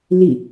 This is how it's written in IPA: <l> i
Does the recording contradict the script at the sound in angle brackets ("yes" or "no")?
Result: no